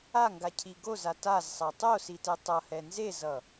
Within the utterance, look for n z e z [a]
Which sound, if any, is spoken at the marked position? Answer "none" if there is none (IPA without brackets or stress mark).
ʌ